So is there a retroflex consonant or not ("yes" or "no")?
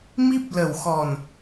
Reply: no